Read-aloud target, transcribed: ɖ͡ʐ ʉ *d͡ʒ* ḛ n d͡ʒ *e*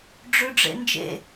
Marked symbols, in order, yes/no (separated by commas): no, no